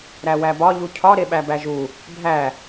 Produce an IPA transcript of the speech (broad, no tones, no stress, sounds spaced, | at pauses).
ɾ æ w æ b ɒ ʎ u cʰ ɒ ɾ e ɓ æ b æ ʒ u | bʱ æ